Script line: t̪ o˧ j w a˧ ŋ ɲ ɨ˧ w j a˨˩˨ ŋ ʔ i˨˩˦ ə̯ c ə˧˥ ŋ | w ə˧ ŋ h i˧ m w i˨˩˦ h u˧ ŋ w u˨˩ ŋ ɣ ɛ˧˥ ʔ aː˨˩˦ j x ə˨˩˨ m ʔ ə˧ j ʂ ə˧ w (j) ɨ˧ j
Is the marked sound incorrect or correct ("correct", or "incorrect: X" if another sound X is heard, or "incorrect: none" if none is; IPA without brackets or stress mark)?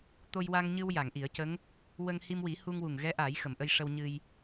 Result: incorrect: ɲ